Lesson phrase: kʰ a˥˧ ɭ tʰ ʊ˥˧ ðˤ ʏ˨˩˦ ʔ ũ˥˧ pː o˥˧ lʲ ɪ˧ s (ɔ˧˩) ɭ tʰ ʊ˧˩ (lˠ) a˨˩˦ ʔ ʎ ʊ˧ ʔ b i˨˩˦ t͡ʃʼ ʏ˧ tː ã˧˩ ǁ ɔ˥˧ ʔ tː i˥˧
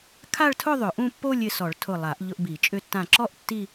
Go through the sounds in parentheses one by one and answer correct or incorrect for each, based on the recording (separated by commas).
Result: incorrect, correct